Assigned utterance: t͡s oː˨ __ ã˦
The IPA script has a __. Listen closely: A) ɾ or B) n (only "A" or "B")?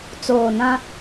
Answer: B